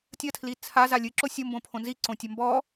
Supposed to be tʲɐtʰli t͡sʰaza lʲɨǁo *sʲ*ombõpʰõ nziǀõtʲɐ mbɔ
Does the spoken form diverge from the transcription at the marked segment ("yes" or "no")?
no